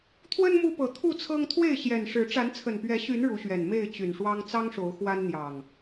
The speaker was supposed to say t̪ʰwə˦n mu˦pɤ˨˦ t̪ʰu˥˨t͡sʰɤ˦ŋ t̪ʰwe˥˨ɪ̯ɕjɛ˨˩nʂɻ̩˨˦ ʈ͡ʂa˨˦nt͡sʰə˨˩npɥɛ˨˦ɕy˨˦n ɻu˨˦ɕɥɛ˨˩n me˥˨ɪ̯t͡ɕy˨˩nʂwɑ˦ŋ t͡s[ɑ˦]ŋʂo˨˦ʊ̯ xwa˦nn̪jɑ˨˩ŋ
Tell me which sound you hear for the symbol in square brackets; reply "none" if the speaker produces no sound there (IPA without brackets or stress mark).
ɑ˦